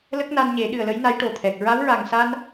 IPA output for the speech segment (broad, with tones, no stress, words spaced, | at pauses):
lə˦˥k̚na˧nɲe˨˩˦ ɗɨ˨˩ə̯lə˧˥jna˧˥j ʈo˨˩t̪ʰɛ˨˩k̚ ɹa˧˥wɹa˨˩ŋsa˧n